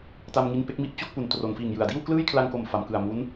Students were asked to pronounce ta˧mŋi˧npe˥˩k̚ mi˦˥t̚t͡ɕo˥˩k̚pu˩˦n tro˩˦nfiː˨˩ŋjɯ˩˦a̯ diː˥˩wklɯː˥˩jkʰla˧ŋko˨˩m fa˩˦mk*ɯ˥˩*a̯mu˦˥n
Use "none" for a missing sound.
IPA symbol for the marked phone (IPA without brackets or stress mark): ɯ˨˩